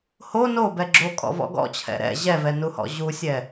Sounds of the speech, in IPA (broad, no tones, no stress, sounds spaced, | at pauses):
h o n o b ɛ ɡ͡ǁ o kʼ ɔ̰ v ɔ̰ ɡ ɔ̰ t͡ɕʰ ɛ̰ ɾ ɛ̰ ʑ ɛ v ɛ n u h ɔ̰ ʑ u sʲ ɛ